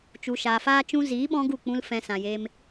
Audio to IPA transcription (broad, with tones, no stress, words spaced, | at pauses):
t͡ʃu˨ʃaː˨faː˧ t͡ʃũ˧ziː˨˦ɓɔ̃˧ ɡu˦˨k͡pũ˧l fɛ̃˨ sã˨jeː˧m